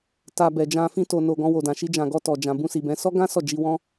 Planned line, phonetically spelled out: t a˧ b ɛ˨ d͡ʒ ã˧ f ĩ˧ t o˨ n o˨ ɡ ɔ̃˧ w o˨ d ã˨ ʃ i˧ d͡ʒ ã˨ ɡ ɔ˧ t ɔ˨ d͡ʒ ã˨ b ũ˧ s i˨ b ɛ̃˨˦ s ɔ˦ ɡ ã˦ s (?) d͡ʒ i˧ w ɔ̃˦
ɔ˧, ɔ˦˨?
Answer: ɔ˦˨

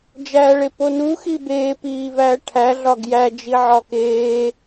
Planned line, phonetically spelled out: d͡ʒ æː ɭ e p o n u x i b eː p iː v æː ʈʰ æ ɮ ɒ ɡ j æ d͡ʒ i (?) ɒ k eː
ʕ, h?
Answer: ʕ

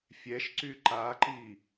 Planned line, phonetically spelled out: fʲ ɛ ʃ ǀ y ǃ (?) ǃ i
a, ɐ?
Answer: a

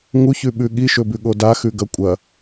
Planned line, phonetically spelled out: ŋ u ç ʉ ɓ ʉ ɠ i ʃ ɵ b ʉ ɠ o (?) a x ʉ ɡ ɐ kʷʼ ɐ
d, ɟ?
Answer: d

